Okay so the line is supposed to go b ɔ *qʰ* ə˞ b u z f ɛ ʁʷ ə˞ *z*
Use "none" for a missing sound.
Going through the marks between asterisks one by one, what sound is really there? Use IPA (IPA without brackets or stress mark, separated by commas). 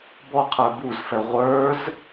qʰ, z